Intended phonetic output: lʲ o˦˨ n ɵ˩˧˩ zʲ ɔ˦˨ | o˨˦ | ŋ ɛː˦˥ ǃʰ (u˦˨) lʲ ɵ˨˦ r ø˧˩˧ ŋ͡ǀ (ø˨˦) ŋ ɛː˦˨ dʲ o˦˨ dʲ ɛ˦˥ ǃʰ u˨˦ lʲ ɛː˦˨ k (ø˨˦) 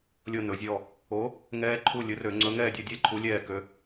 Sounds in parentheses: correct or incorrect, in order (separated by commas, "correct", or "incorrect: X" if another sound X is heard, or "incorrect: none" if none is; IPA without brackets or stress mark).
correct, incorrect: ɵ˨˦, correct